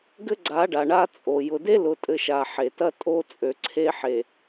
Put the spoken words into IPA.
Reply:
ɡ ɘ˦ ɡ͡ǀ a˨˦ ɖ a˨ ɳ a˦ t͡sʼ o˨ j ʊ˨ d e˦ l ʊ˨ tʼ ɘ˨ ʃ a˨ ħ e˨ t ɐ˦ tʼ o˦ t͡sʼ ø˨ ǀʰ e˦ ħ e˨

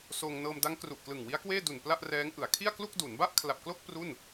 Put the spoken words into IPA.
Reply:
s oː˧ ŋ n ɤː˧ m d a˦˥ ŋ k r u˨˩ ʔ k l ɯ˨˩ ŋ w i˦˥ a̯ k w eː˥˩ d u˨˩ n p l a˥˩ ʔ r ɛː˦˥ ŋ ʔ ɯ˩˦ a̯ kʰ i˥˩ a̯ k l u˥˩ k̚ d u˩˦ n b a˥˩ ʔ kʰ l a˨˩ p̚ k l o˥˩ k̚ p r u˥˩ n

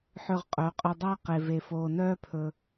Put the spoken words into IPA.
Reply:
ħ ø˧ ʁ qʼ œ˨˦ qʼ ɵ˧ dˤ æ˦ q e˧ v e˧ f oː˧ n œː˦ pʰ ɵ˧

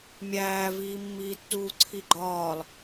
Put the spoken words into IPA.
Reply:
mʲ æː v iː mː iː tː uː ǀʰ i ɡ͡ǃ ɒː lˠ

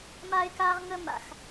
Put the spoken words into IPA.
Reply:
m a˦ ɪ̯ k aː˦ ʁ ŋ ə˦ m a̰˩ x

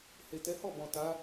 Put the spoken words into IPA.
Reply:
h e˨ t ɛ˨˦ h ɔ˦˨ b ɔ̃˨ t a˨˦

